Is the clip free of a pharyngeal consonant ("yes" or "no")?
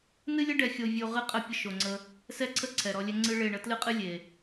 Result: yes